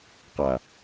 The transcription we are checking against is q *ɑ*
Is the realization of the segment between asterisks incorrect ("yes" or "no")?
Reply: yes